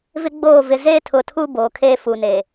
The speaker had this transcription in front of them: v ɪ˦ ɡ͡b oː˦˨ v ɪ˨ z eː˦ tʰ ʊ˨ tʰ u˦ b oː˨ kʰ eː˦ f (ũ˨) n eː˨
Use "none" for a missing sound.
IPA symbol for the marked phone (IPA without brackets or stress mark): u˨